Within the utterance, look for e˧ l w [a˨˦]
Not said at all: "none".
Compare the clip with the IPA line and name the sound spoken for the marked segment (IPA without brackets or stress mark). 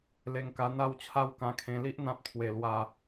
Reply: a˧